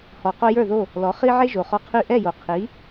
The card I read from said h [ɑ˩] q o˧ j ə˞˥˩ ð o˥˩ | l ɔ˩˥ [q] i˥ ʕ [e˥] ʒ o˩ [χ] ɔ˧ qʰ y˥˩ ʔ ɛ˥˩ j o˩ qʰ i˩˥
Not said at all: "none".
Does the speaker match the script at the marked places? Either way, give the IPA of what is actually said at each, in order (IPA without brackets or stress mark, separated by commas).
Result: ɔ˩, χ, e˥, χ